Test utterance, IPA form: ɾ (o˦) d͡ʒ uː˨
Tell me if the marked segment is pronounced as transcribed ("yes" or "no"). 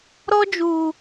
no